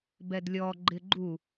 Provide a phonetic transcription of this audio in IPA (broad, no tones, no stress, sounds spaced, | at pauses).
b ɛ d lʲ ɔ ɡ͡ǃ ɪ ɡ͡ǃ u